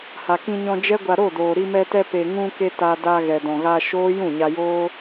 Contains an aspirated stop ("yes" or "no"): no